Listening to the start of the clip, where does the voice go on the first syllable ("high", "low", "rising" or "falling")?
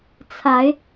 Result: rising